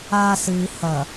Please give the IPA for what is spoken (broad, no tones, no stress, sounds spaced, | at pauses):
a s ɨ i̯ h ɐ